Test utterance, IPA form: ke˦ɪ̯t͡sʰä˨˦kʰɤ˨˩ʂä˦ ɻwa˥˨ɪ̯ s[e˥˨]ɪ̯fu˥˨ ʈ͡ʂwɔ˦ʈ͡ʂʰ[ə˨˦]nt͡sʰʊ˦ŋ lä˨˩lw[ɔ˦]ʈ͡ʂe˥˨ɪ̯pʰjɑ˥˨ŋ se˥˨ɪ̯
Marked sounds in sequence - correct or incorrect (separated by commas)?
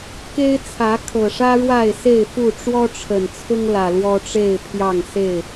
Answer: correct, incorrect, correct